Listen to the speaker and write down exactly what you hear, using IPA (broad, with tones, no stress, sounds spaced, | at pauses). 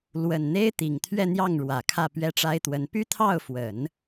l w ə˨˩ n n̪ e˥ ɪ̯ t̪ i˨˩ ŋ t̪ʰ ɥ ɛ˥˧ n̪ j ɑ˥˩ ŋ ɻ w ä˨˩ kʰ ä˥˩ p ɥ ɛ˥ ʈ͡ʂ a˥ ɪ̯ t̪ w ə˧˥ n p y˥ t̪ʰ ɑ˥˩ ʊ̯ f w ə˨˩˦ n